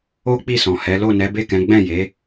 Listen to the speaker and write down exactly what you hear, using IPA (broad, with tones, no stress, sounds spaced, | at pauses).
o˦ k͡p i˦˨ s ɔ̃˨ h ɛ˨˦ l o˦˨ n ɛ˨˦ b e˦˨ k ɛ̃˨˦ ɡ͡b ɛ̃˦˨ j e˨˦